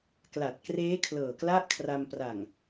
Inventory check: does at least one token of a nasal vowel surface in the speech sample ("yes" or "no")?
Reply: no